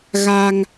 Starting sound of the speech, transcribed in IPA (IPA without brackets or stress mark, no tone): ɣ